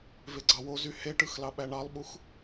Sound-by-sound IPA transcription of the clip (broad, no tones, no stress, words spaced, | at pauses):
veɡ͡ǀɑwozy heʈɯx lɑɓæɳɑlˠɓux